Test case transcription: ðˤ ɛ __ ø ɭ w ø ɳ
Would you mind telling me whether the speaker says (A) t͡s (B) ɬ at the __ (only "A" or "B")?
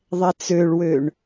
A